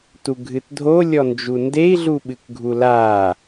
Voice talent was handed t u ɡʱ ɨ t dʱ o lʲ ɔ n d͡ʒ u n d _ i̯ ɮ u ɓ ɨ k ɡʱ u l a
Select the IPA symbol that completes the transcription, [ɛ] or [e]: e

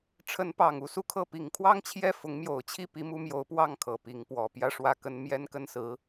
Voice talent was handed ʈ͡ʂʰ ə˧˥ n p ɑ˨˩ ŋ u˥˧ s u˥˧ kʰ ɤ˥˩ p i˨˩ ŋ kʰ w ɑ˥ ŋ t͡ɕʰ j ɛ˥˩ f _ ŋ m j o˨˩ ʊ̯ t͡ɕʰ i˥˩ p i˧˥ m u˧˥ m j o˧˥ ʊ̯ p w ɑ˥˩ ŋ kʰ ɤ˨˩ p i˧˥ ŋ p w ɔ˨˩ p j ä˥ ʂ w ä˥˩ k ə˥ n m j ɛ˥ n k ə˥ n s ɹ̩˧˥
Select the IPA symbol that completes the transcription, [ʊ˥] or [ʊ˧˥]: ʊ˧˥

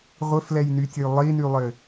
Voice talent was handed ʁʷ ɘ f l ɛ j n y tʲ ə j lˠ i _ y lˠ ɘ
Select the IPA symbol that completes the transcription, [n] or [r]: n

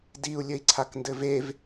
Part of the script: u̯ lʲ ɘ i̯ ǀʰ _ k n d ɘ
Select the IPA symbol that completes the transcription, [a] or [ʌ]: a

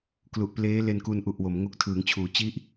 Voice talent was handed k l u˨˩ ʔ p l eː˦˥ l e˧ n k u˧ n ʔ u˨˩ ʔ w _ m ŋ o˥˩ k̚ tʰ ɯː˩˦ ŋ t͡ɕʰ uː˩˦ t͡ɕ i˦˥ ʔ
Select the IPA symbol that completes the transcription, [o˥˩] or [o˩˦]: o˩˦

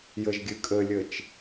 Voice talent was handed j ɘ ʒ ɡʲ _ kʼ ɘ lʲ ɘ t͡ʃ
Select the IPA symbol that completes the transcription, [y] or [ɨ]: ɨ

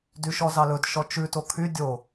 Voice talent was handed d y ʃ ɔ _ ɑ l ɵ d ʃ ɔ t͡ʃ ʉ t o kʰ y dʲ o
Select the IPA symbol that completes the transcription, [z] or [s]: z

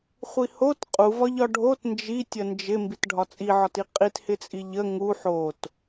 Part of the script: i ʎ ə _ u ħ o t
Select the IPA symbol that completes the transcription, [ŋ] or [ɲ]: ŋ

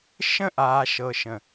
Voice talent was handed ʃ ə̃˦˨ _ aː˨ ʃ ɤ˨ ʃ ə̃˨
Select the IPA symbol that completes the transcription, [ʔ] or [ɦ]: ʔ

